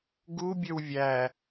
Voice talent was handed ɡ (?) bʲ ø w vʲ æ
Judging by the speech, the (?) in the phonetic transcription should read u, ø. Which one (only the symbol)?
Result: u